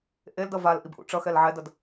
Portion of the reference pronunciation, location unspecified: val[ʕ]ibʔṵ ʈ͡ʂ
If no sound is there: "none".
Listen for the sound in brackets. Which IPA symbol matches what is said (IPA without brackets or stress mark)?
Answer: ʔ